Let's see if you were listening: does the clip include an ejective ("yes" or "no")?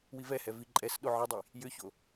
yes